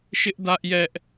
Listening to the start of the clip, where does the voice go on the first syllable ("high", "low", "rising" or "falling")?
high